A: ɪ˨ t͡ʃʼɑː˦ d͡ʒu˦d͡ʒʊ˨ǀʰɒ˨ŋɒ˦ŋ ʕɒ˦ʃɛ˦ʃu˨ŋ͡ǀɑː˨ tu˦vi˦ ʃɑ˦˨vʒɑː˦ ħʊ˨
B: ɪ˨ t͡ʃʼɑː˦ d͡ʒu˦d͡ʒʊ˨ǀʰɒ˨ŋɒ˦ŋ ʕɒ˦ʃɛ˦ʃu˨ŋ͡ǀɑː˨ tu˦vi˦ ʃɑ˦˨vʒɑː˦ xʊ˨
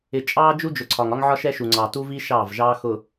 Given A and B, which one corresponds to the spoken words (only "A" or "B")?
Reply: B